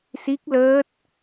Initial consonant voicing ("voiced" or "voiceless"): voiceless